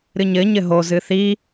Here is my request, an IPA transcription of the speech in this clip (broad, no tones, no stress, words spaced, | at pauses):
ɾɨɲɘ ɲɘɦo zɨθi